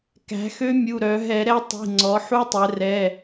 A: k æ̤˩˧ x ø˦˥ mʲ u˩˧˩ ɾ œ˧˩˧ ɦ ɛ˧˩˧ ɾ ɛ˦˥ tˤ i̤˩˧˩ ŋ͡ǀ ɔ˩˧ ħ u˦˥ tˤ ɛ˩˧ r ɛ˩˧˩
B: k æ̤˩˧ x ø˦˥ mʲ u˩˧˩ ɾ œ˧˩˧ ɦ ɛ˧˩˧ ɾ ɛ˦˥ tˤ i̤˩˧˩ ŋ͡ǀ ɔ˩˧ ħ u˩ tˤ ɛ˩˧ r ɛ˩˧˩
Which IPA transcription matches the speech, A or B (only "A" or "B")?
A